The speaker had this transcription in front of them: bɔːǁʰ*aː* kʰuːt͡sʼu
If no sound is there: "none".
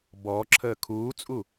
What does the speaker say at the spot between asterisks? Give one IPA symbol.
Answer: əː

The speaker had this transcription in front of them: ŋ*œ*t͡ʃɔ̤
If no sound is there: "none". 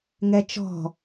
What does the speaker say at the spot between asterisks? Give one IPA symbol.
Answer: ɛ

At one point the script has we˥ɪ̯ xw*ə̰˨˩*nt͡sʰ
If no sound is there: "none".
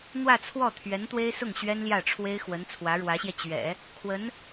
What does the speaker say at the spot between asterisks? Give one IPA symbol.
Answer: ə˧˥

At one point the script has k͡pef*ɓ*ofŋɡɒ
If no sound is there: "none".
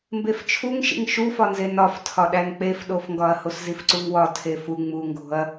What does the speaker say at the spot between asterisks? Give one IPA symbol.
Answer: ɗ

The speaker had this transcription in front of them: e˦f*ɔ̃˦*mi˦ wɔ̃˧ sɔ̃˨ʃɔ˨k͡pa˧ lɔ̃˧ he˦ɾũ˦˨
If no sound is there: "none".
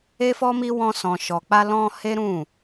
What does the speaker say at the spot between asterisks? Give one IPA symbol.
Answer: ɔ˦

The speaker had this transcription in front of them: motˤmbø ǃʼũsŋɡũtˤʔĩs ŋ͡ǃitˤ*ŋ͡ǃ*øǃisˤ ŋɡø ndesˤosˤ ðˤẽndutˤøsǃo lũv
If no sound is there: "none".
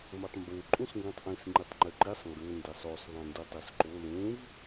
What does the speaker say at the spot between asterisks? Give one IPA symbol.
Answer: ŋ͡ǃ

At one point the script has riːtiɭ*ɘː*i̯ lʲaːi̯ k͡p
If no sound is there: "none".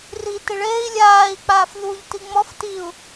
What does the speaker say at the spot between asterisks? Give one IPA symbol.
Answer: eː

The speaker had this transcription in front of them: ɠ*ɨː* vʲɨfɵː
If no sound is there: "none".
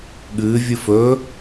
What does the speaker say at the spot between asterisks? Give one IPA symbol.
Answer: ɨː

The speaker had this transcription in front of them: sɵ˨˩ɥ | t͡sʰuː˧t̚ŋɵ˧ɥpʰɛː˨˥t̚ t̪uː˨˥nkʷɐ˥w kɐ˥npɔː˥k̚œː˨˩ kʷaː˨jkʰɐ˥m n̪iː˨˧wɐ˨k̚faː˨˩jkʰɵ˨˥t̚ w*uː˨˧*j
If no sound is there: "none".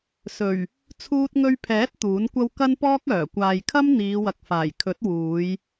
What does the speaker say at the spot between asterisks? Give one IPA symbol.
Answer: uː˨˧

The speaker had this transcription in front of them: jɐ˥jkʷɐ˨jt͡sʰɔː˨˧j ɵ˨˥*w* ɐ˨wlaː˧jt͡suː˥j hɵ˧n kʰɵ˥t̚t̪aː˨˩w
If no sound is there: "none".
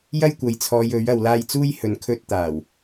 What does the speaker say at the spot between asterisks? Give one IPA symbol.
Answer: ɥ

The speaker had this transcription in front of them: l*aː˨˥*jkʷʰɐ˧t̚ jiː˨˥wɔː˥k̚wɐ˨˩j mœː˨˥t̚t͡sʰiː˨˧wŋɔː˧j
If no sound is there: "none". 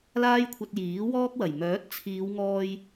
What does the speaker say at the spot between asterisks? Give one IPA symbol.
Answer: aː˥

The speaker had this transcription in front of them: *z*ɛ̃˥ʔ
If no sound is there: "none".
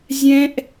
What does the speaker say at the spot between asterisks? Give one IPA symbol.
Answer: zʲ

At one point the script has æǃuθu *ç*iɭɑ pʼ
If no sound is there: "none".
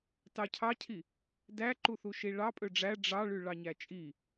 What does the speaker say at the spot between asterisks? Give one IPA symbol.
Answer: ʃ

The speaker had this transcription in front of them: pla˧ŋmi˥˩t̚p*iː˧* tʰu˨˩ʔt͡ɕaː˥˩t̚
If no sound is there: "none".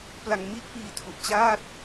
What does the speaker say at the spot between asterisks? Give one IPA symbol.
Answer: iː˧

